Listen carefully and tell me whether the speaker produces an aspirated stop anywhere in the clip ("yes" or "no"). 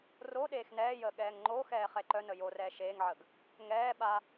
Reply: no